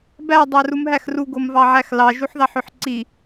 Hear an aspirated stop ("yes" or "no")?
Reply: no